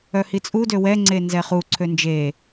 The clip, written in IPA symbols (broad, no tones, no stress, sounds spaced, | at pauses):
œ h i t͡sʼ u d ø w ɛ ŋ͡ǀ e n z ɛ χ u ǀʰ ø n d͡ʒ e